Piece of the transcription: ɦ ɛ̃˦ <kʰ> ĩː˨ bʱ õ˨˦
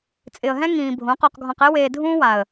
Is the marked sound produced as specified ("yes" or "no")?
no